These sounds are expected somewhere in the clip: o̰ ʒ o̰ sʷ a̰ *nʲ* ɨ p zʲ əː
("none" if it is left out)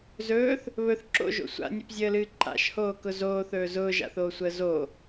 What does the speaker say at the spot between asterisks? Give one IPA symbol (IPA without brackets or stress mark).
nʲ